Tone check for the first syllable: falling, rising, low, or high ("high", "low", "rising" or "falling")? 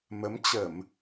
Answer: rising